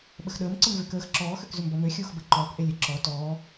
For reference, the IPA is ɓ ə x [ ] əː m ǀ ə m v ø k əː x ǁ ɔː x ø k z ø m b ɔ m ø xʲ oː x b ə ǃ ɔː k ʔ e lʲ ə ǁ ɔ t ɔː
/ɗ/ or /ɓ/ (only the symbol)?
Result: ɗ